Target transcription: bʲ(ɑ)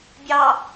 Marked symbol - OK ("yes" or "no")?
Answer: yes